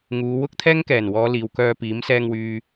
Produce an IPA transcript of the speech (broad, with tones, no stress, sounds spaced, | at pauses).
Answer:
ŋ uː˨˧ w ʊ˥ k̚ t̪ʰ ɛː˥ ŋ k ɛː˨˩ n w ɔː˨˧ l iː˨ w k œː˧ p iː˨˥ m s ɛː˧ ŋ w yː˨